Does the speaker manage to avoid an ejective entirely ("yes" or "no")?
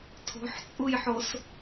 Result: no